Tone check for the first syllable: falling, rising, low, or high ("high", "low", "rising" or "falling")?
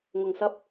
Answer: low